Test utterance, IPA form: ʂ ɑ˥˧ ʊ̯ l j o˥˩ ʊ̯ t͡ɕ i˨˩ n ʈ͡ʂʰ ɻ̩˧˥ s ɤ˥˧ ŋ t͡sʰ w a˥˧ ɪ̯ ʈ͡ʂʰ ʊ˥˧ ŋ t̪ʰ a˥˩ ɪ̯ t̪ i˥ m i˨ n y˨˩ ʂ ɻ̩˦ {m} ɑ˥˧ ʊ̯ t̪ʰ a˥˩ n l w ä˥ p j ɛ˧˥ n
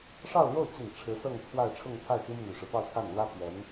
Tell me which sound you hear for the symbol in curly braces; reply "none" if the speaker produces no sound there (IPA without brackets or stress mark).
p